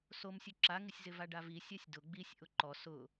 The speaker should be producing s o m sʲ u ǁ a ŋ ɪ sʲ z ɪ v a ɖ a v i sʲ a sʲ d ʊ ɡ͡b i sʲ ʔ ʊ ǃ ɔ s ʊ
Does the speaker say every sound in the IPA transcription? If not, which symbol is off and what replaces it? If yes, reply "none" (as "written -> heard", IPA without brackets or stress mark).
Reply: none